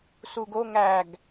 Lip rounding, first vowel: rounded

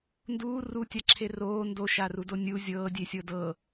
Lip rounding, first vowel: rounded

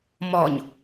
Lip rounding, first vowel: rounded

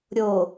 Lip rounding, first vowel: rounded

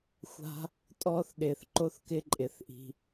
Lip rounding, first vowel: unrounded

